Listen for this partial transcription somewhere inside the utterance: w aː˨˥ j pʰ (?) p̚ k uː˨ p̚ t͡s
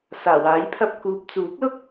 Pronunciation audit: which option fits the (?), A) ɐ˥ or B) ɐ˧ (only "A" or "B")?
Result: B